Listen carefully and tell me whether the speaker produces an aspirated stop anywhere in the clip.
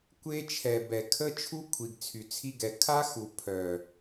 yes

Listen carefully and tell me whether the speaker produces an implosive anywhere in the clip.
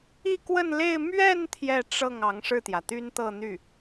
no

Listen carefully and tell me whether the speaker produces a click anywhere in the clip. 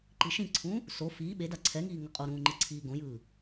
yes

